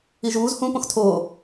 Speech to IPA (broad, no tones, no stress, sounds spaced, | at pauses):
i ʒ uː z h ũ p õ x tʰ oː